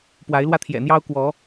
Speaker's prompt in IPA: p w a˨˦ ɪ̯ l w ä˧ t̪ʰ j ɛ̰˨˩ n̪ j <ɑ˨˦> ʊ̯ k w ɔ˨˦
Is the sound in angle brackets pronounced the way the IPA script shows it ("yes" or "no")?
no